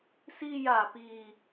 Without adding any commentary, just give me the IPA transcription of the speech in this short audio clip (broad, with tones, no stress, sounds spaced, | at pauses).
s iː˧ j aː˨˩ p iː˧